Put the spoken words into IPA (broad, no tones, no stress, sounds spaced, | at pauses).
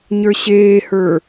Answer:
ɲ ə˞ ɕ eː h ə˞